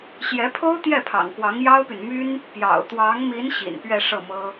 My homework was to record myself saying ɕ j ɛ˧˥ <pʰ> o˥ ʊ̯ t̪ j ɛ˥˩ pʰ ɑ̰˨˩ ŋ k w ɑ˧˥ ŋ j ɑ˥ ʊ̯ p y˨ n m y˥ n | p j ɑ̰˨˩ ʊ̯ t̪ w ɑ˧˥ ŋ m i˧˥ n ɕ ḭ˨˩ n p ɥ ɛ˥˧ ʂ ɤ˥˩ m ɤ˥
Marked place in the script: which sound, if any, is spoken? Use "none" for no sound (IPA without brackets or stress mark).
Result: pʰ